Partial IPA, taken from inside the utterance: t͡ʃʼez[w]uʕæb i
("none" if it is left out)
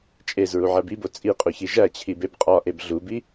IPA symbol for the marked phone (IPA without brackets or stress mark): ɹ